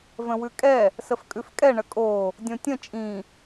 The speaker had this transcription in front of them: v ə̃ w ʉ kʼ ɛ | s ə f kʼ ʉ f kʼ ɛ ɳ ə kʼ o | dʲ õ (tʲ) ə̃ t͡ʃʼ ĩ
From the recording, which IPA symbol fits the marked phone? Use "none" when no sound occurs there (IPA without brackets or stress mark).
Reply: tʲ